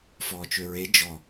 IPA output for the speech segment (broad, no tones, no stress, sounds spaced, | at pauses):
f ɔː t͡ʃ ø ɹ e d͡ʒ ɔ